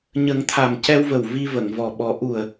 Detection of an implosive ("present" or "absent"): present